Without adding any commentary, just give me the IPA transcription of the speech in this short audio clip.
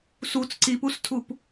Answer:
sut͡s ǀipustʰup

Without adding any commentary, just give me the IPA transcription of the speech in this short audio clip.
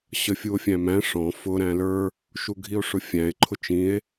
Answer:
ɕəfʲuo̯fʲæ̃mæ̃ ʂɔ̃ fʊ ɾæ̃lə˞ | ʃuɡʱio̯ʂʊfʲæ̃e̯ ǃʰʊt͡ʃĩe̯

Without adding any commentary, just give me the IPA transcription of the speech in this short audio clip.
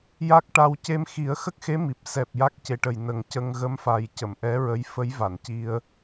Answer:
ja˦˥k̚ʈa˧w ce˧mxi˨˩˦ə̯xə˦˥k̚xe˧˥ mi˨˩p̚ sɛ˨˩p̚ ja˦˥k̚ce˨˩ʈə˨˩j nə˨˩ŋcə˧ŋ ɣə˧˥mfa˨˩j cə˨˩˨mʔɛ˧˥ɹə˧˥j fə˧˥jva˨˩˨nci˧ə̯

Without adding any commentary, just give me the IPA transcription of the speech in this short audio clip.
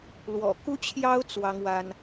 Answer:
lwɔ̰˨˩ ku˥t͡ɕʰjɑ˥ʊ̯ t͡swɑ˥ŋwa˥n

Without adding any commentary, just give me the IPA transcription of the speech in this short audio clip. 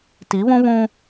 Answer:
ti˨˦βũ˦βũ˦

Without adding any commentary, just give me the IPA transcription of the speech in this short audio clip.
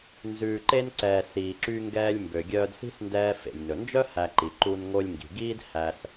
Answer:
nzʉː˩ǃe˧nǀɛː˩ siː˩ǁy˧ŋɡɛː˧lʲ mbø˩ɡʲœː˧dsi̤˥sndɛː˧ fḛ˩lʲnɵ˩nd͡ʒœ˥ hæ˧ǃi˩ ǃu˧n ŋo˧lʲŋɡi̤˩ɡiː˥d hæ˧s

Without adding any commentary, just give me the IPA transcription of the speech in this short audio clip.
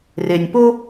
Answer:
re˨nʲpo˦

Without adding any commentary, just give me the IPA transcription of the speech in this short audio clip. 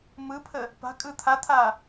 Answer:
mɯpʰə | pa̤kʼɯ t̪ʰat̪ʰa

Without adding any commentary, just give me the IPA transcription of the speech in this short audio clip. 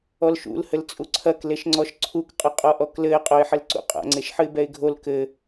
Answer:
ɔlʃṵl hɘlt͡sʼuǀʰɐk leʃŋ͡ǀɔʃǀʰuk qʼɐqʼɔʔɔklɘɪ̯ qʼoɪ̯ħɘlǀṵqʼa̰ ŋ͡ǀeʃħɨɪ̯bɛɪ̯ɡʱol kɘ

